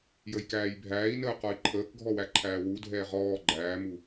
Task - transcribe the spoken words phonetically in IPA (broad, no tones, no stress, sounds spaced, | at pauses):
j ə j k æː j bʱ æː i̯ n əː q ɔ i̯ ǃʰ əː k ɡʱ ɔ w æ ǃʰ æː w u dʱ ɛː ʁ ɔː ɡ͡ǃ æː m u